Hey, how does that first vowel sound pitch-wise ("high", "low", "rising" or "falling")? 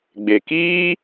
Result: low